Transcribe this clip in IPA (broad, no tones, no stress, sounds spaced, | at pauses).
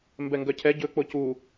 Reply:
m b ɛ ŋ ɡ œ cʰ ɛ ɟ ɵ k͡p o c u